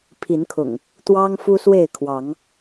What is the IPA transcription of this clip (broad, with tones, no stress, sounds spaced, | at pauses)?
pʰ i˨˦ n kʰ ʊ̰˨˩ ŋ | t̪ w ɑ˦ ŋ f u˦ s w e˥˨ ɪ̯ kʰ w ɑ˨˦ ŋ